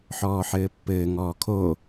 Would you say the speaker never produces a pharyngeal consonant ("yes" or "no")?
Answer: no